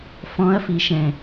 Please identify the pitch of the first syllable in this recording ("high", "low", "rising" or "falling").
rising